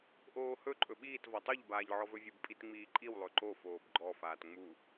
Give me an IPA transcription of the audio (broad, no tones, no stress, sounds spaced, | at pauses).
ʔ oː h ɵ ǃʼ ɵ ɓ iː t v ɒ tˤ o ʎ b aː ʎ ʕ ɔ v ɵ vʲ u b pʼ i t ŋ͡m iː ǃʼ i w lˠ ɵ ǃ o f oː b ɡ͡ǃ ɔ f aː t ŋ͡m u